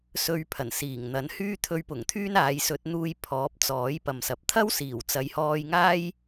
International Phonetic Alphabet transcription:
sɵ˧ɥpʰɐ˨˩n siː˨˩ŋn̪ɐ˨˥n hyː˥t̪ʰɵ˧ɥpʊ˨˩ŋt̪ʰyː˥n aː˨˧jsɵ˨˥t̚n̪uː˧j pʰɔː˨˥p̚t͡sɔː˨˥j pɐ˨msɐ˨p̚ t̪ʰɐ˥wsiː˨˩wt͡sɐ˨˧jhɔː˧j ŋaː˥j

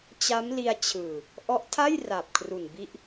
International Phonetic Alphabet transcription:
t͡ɕa˦˥mli˧a̯ t͡ɕʰɯː˨˩ | ʔɔ˦˥ʔtʰa˥˩jra˨˩p̚ kʰru˨˩nbi˦˥ʔ

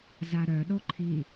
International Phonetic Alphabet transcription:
zaɾœɗo ǃʰi

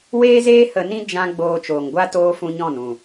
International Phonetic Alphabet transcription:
weː˦zeː˦ hə˧nĩ˦ d͡ʒã˦ ɡ͡boː˧t͡ʃoː˨ŋɡʷa˦toː˦ fũ˦ɲɔ̃˦˨n ũ˨

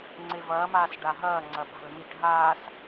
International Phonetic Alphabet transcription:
ŋ͡ǀevɐːmaːs ɖaɦɐːŋ͡ǀɐ ɓa̤lmiʈ ɦaːs

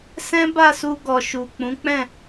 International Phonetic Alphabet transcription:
sɛ̃˦ba˦˨su˧ ɡɔ˨ʃu˨k͡pũ˨˦k͡pɛ̃˦˨

